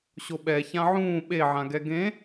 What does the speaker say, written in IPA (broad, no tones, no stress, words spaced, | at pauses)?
ɕoɓɛ çãʕũː ɓe ʕãɡɛɡẽ